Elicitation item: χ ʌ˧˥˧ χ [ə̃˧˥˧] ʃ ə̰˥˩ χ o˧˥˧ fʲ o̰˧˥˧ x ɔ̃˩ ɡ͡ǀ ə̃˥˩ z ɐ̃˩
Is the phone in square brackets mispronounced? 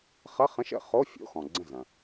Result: no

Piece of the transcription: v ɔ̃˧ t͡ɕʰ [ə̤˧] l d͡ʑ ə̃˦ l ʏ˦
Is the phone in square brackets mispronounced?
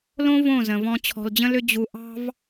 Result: yes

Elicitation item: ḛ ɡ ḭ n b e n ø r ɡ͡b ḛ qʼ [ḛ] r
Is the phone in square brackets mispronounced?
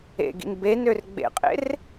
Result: no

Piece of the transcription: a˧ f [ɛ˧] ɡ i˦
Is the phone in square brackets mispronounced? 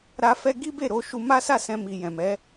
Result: yes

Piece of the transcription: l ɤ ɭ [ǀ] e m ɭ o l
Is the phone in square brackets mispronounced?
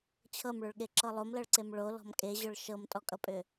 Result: no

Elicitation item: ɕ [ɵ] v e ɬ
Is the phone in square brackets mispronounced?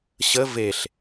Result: yes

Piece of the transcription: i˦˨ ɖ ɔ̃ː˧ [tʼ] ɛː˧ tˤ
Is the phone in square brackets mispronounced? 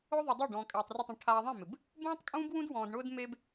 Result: yes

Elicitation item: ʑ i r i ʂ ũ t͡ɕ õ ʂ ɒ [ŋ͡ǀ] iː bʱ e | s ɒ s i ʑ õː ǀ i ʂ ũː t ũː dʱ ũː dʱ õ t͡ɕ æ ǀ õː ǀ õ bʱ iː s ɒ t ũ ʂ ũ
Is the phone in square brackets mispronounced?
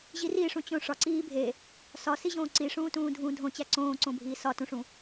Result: yes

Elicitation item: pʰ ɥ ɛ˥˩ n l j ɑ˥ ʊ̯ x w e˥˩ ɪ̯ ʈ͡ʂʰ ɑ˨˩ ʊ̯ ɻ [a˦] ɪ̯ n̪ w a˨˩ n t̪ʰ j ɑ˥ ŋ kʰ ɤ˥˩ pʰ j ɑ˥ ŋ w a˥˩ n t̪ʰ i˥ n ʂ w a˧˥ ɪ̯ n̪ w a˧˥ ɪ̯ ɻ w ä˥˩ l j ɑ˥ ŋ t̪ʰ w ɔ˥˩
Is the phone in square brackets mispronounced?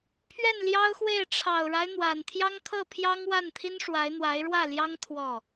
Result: no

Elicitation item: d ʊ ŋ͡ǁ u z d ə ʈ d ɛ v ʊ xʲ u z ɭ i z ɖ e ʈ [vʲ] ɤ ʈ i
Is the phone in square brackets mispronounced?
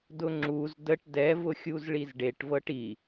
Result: yes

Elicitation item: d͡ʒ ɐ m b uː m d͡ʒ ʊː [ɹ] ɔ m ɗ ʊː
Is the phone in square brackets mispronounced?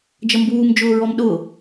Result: no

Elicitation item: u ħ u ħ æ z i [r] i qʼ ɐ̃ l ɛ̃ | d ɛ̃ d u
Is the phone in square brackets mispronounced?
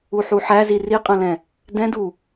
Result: no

